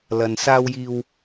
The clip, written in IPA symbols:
lɐ˨nsaː˧wjiː˧w

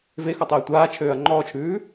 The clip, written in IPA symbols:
vexɔtˤeː tʷaːt͡ʃʰøːɐ̯ ŋ͡ǃɔːt͡ʃʰʉː

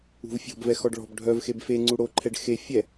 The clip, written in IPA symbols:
ṳvfʲɔ̤bvɛ xɔɖɭɔ̤b ɖʱœv xebfe ŋ͡ǀuɽoǃʰɛɖ xe fʲɛ

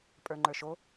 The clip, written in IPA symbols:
pʼə˞ŋ͡ǃə˞ʃo

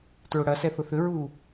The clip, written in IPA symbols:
tɹʊɽɐsɛ θʊθʏɹuː

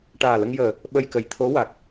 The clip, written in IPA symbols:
ʈaː˨˩lə˧ŋjəː˨˩ | ɓə˧jkə˨˩j t̪ʰo˧˥ wa˨˩k̚

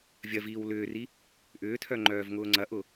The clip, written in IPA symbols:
vʲɐviːw lʏːri | ʔʏːtʰœŋ͡ǃœːvŋʊː ŋ͡ǀɐʔʊ

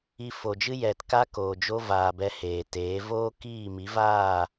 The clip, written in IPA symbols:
i˧fo˨d͡ʒɨ˦ jɛ˨tka˦ koː˨d͡ʒo˦vaː˨bɛ˧ heː˨teː˨˦ voː˦kiː˦˨ mi˨˦vaː˦˨

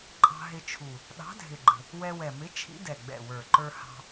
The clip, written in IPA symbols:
ǃʼɑ̤˧ɦɪ˧t͡ʃʰu˨˩ | ɗɑ̤˨˥dʱɪ˨˩ɡ͡ǃə̤˨˩ | wɛ˧wɛ˨˩mɪ˨˥ t͡ʃʰḭ˨˥dɛ˨˩ɡ͡bɛ̰˨˩wə˞˨˩ ǃə˞˧hɑ̤˧

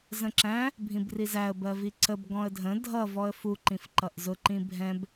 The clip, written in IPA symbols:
zə̃ǁæ̃ | bʱĩbrizæə̯ bɜviǀəb ɡɔ̃ə̯dʱə̃ dʱʌ vɔə̯fu ǃĩfǃʌʔzʊ ǃĩbʱɛ̃b

